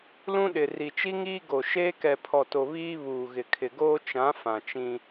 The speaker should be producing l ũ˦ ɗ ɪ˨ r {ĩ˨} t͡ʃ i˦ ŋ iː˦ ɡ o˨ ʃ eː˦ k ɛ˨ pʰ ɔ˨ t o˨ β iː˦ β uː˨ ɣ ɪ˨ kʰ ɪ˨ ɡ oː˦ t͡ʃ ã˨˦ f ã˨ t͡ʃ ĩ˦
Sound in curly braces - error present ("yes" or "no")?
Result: yes